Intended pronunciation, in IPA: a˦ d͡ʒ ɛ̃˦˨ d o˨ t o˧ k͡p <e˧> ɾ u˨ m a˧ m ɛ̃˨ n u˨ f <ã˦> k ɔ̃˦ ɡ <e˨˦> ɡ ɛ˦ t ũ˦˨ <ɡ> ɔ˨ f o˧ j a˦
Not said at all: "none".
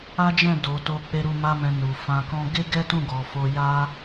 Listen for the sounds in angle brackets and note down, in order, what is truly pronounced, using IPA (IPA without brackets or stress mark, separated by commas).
e˧, ã˧, e˦, ɡ